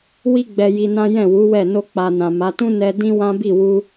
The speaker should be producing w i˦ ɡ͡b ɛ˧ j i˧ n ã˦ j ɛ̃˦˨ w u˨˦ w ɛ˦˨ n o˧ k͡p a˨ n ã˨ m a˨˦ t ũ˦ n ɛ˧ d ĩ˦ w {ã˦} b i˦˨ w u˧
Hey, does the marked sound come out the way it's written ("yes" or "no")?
yes